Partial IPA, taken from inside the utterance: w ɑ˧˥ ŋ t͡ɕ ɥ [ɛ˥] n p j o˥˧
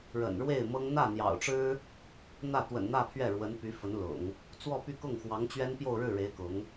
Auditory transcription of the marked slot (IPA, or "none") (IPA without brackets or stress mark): ɛ˥